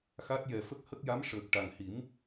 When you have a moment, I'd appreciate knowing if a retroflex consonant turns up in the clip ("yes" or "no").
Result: yes